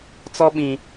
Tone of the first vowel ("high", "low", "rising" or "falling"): high